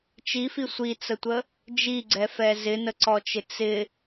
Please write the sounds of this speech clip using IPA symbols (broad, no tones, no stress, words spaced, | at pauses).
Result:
t͡ʃifi sʷit͡sətʷə | d͡ʒiɡ͡ǀɛfɛ zɪnəǀɔt͡ʃɪ t͡sɪ